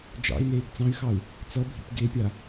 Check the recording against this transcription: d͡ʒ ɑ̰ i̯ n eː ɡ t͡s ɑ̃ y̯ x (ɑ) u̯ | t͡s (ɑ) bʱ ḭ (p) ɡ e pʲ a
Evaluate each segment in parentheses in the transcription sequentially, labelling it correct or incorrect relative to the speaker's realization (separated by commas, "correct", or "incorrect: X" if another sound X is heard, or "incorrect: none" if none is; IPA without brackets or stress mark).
correct, incorrect: ʌ, correct